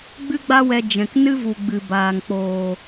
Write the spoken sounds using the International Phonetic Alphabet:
ɡ͡b ɨ˦ ɡ͡b a˦ w ɛ˧ d͡ʒ ɛ̃˨ k n ɨ˦ v u˨ ɡ͡b ɨ˨ b aː˨ ŋ k͡p oː˨

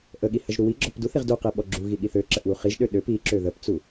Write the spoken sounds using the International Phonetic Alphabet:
ʔ ə ɠ i h ə ʒ ɾ u w i ɡ͡ǁ ɔ p d u θ i ʁ d u q i ɓ ɔ ɡ͡ǁ u ɣ i ɠ i θ ø ǁ ə ʔ w u χ i ʒ ɗ ø ɗ ø p i ǁ ø ð ə p t͡s u

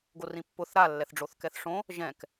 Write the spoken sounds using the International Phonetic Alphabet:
ɡ o r ĩ pː ʊ θ ɾ a lː ɛ θ ɖ͡ʐ o θ k ɛ θ ʂ õ | ʒ ɛ̃ k

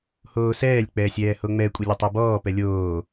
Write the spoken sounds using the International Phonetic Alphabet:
h oː s ɛː lʲ k͡p ɛː sʲ ɛː h o ŋ͡m ɛ kʷʼ e lʲ ɛ tˤ ɤ b ɔː p ɛ lʲ oː

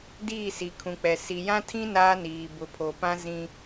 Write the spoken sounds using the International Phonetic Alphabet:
d iː˦˨ s i˨ kʰ ũ˨ k͡p ɛ˨ s i˨ j ã˦ tʰ ĩ˦ n aː˦ n iː˨ b ʊ˨ pʰ o˨ p ã˦ z ĩ˦

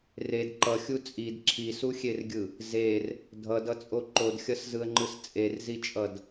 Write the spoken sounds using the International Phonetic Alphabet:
r e d ǃ ʌ xʲ u t͡sʼ i d ǁʰ i s u xʲ e r ɡʲ ɯ | z e r | dʱ ʌ d ʌ t͡sʼ o ǃ o d xʲ ʌ s z ɯ ə̯ ŋ͡ǃ ɯ s t͡sʼ e r z i t͡ʃʼ ʌ d

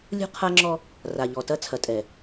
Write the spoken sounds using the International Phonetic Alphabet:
lʲ ṳ˦ qʰ a˦ ŋ͡ǁ ɔ˦ | r a˨ ʎ ɔ˨ t ɐ˦ t͡sʰ ɐ˨ tʼ ɛ˨

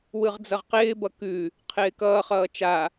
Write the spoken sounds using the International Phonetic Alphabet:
w ɯ ʁ d͡z ʌ ʁ q ɪː b ʌ k ʉ | qʰ ɪː k ʌː χ ʌː t͡ʃ a

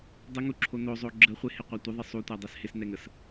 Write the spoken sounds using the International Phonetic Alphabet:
dˤ ɪ ŋ u ǁʰ o n o zˤ o ɡ͡ǁ ə χʷ ɪ h ɪ qʷ a tʷ ɪ ðˤ ɪ sˤ u tʷ a dˤ ɛ s h ɪ s n ɛ ŋ ə s

